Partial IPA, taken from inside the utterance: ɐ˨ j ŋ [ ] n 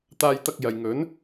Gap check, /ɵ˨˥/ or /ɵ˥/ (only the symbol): ɵ˨˥